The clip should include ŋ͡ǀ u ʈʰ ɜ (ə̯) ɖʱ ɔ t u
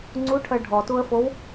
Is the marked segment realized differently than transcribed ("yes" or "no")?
yes